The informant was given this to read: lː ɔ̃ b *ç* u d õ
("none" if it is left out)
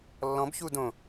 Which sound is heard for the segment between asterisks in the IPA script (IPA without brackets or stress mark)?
ç